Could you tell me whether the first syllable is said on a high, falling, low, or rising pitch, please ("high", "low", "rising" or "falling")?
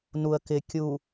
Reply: low